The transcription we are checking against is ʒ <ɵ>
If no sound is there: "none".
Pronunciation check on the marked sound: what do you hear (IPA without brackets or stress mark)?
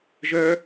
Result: œ